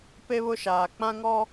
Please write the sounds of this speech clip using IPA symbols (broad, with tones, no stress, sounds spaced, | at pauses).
p e˦ β ʊ˦ ʃ aː˨ k͡p ã˦ ŋ ɔ˦